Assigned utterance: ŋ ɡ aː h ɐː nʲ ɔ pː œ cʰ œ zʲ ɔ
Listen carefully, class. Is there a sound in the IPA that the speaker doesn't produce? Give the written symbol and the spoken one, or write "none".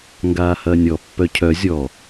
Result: none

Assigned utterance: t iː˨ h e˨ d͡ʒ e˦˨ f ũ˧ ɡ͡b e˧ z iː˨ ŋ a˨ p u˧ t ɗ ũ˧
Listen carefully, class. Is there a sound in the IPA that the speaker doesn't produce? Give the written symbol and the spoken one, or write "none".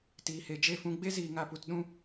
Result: u˧ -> u˨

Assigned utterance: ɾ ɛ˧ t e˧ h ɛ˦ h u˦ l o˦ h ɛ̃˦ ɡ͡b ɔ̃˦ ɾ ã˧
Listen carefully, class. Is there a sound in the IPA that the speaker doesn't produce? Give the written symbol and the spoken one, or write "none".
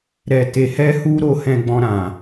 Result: l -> ɾ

